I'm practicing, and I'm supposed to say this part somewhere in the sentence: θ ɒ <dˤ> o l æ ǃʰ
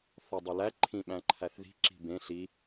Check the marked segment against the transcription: correct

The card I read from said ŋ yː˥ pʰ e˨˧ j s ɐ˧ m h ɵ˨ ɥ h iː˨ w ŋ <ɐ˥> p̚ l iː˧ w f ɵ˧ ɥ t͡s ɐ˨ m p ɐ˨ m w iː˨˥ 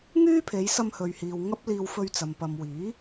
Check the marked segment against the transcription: correct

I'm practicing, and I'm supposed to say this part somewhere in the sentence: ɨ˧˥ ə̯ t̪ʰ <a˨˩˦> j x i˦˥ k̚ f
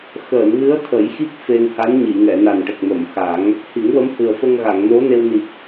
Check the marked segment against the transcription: incorrect: ə˨˩˦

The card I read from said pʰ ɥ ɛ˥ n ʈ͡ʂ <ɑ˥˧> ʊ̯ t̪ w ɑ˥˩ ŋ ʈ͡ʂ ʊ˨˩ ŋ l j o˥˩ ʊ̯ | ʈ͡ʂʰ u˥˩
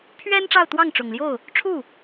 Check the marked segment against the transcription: correct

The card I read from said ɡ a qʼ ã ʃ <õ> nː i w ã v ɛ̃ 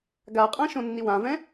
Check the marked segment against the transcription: correct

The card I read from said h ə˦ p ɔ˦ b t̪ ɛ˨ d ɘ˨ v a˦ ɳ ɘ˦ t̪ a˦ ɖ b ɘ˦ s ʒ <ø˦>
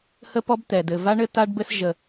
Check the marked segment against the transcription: incorrect: ə˦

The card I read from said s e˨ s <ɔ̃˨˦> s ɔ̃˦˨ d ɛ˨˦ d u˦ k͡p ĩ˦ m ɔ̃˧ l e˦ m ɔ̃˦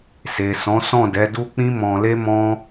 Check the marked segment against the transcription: correct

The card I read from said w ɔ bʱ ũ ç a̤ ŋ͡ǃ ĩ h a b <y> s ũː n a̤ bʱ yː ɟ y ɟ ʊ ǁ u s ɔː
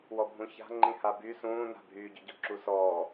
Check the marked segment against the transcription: correct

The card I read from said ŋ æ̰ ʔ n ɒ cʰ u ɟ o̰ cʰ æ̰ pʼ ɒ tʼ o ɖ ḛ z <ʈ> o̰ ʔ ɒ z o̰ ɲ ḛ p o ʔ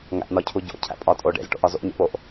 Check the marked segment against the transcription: correct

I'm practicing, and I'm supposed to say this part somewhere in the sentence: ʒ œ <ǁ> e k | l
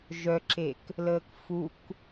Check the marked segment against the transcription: correct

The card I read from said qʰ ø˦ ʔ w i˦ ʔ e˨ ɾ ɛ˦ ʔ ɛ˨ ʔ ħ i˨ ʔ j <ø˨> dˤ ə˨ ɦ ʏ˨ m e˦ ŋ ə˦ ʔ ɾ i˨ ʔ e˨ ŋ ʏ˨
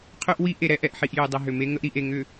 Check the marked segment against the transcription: correct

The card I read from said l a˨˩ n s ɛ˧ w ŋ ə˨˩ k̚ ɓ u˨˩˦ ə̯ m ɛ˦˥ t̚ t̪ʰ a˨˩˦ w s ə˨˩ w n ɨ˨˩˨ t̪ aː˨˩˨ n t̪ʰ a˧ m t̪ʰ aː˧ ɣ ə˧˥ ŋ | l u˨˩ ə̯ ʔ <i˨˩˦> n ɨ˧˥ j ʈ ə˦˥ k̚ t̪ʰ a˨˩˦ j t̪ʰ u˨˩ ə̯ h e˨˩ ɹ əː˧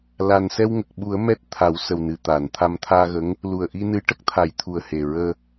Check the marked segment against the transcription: incorrect: i˧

